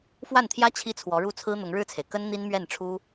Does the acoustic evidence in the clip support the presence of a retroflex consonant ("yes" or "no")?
yes